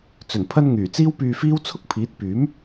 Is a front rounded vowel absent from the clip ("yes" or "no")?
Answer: no